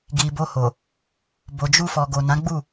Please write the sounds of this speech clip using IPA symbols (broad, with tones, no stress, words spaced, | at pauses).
ɡi˨bo˧ho˨ | bo˨d͡ʒu˧ fɔ˨ɡo˨nã˨˦ɡ͡bu˦˨